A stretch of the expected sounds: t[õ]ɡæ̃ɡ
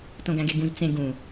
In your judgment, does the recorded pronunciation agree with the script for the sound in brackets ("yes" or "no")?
yes